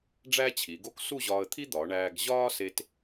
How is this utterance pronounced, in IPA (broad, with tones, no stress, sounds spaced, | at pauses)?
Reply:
ɖ͡ʐ æ˥ t͡ɕʰ i˩˧ ɡ o˥ k s u˥˧ ʑ ɒː˧ ə̯ t̪ʰ i˥ d̪ ɒː˩˧ ɳ æː˧ ɡ ʑ ɒː˥ s e˧ t